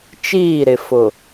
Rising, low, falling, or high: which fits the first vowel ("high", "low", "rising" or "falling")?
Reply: falling